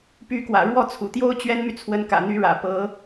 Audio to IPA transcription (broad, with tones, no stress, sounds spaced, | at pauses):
p y˧˥ k w ä̰˨˩ ɻ w ɔ˥˩ t͡sʰ ṵ˨˩ t̪ j o˥ ʊ̯ t͡ɕ ɥ ɛ˥ n m y˨ t͡sʰ w ə˧˥ n k ä̰˨˩ n̪ y˧˥ ɻ ä̰˨˩ p ɤ˧˥